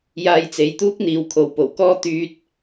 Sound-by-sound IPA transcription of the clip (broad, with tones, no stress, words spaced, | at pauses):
jaː˧jt͡se˨˧jt̪uː˥k̚n̪iː˨˧w kʰo˨wpo˨˩wkɔː˥ t̪yː˧t̚